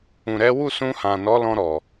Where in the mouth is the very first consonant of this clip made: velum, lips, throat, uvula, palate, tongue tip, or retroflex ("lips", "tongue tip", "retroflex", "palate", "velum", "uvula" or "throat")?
tongue tip